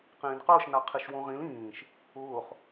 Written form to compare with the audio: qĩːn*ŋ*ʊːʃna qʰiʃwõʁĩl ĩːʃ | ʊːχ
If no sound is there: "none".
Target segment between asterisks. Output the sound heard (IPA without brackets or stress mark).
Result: q